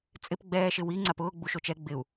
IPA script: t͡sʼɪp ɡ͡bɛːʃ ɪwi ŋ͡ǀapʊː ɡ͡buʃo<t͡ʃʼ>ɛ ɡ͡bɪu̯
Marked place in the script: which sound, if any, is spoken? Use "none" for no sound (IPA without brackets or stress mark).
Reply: t͡ʃ